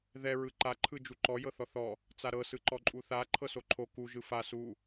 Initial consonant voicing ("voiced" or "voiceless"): voiced